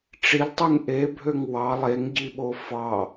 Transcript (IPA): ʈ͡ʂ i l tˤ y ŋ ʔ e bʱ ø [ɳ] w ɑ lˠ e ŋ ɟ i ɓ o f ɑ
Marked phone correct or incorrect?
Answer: incorrect